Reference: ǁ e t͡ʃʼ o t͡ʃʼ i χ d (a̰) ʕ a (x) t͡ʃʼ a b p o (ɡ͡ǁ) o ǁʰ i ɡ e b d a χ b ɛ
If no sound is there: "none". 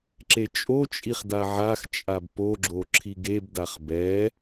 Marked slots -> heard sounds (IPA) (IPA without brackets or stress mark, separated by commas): a, x, ɡ͡ǁ